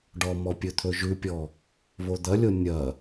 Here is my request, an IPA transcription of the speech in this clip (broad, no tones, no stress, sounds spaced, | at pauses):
ɖ ɔ m ɔ pʲ ɵ t̪ʰ ɵ ʒ ʉ pʲ ɔ | β o d̪ ɐ lʲ o nʲ ɐ